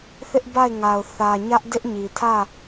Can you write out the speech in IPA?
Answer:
θ ɪ˦ ʔ b a˦˨ ɪ̯ ŋ a˨ ʊ̯ θ ä˨ ɲ ä˦ ʔ d ɪ˦ ʔ ɲ i˨ tʰ ä˦˨

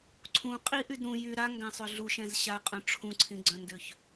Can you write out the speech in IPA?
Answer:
ǀʰ ũ qʼ i ʔ y d ɾ ũ j y ɾ a ŋ ɡ ã sˤ ø ɮ u ʃ ɛ̃ z ɕ a qʼ œ̃ ʈ͡ʂʰ ũ ǀʰ ĩ ɡ͡ǀ œ̃ n d ø ç

